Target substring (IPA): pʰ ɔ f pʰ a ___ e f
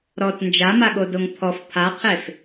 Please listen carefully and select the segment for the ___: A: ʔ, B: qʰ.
B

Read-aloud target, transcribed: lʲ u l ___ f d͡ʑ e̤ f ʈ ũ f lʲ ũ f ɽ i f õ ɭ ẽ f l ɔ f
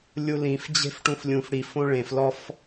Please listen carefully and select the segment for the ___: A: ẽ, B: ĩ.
B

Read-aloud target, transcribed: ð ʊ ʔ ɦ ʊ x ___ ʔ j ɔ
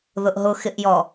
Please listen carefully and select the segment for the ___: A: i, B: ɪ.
B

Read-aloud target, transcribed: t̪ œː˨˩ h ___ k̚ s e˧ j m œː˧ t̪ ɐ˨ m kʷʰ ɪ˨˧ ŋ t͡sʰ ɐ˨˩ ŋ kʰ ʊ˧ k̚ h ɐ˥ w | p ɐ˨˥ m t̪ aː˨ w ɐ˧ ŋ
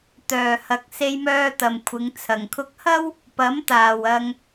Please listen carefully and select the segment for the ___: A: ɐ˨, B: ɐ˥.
A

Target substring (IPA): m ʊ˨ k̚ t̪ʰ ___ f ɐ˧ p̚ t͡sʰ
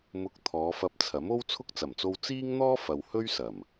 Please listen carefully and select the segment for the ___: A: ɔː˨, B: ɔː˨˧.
B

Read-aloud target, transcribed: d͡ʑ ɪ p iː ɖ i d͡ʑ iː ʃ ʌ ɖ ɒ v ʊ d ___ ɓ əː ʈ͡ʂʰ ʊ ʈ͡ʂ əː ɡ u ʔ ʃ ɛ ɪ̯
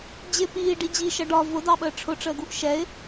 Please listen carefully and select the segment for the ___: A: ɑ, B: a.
A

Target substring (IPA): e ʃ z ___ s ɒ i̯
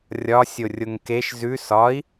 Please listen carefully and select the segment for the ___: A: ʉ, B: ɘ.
A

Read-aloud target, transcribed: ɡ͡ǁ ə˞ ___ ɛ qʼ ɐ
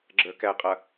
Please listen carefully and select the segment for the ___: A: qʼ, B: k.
B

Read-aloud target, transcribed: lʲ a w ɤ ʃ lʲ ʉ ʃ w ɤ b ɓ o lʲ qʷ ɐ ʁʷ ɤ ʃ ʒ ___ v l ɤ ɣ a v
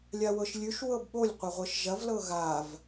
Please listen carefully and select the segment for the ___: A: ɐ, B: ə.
A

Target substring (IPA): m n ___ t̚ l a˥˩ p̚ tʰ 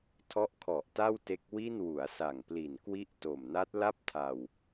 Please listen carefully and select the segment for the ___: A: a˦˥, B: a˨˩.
A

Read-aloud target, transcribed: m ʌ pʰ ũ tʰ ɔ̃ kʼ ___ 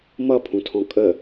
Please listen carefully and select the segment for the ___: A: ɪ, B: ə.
B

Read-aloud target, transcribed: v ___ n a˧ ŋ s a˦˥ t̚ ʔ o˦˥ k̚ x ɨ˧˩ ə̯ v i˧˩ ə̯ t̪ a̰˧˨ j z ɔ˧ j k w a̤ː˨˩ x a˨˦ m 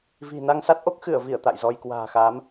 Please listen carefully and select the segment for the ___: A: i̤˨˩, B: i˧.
A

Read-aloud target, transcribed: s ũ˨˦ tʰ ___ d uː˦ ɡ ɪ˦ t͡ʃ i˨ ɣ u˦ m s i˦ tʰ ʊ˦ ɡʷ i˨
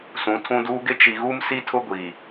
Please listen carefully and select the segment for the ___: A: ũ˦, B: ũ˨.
A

